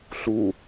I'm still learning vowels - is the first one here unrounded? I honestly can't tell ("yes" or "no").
no